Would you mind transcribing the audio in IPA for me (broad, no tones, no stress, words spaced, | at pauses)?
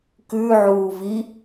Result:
kʉʕuː vi